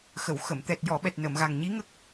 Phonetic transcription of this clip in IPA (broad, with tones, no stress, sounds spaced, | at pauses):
x ə˨˩˨ w x ə˨˩˨ m t̪ ɛ˨˩ t̚ j ɔ˨˩˨ ɓ ɛ˨˩ t̚ n ə˨˩˨ m ɣ a˨˩ ŋ ɲ i˧˥ ŋ ə˦˥ k̚